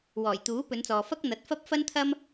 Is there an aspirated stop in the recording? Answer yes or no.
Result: yes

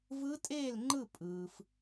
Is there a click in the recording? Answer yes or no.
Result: yes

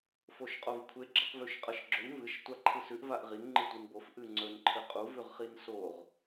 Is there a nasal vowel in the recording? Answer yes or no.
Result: no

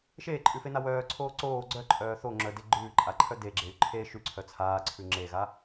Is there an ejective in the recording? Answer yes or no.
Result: yes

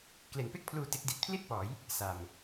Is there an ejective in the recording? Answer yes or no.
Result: no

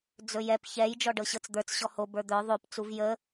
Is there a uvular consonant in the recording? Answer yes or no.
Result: no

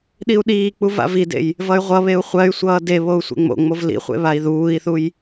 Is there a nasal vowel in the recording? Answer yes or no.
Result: no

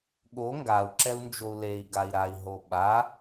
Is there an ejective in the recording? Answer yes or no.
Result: no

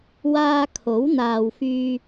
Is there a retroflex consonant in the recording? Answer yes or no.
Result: no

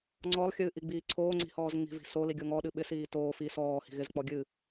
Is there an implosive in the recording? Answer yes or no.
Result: yes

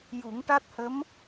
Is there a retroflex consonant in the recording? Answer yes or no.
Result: yes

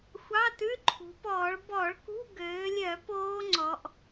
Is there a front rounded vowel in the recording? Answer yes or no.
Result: yes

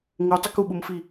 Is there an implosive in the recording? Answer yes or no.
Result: yes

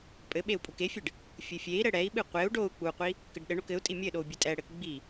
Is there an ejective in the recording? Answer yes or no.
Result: yes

